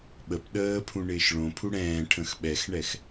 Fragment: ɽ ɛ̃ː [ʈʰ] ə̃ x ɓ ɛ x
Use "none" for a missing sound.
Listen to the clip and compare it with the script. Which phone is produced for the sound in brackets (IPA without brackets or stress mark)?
ʈʰ